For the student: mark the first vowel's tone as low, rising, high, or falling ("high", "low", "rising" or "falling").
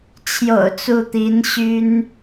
low